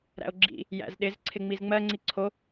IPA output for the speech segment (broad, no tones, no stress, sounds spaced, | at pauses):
ɾ æ̰ o̯ ɡ͡ǁ ḭ | j æ̰ z ɗ ɪ z ǀʰ ɪ ŋ͡m i z ŋ͡m ɜ ŋ͡ǀ i ǀʰ o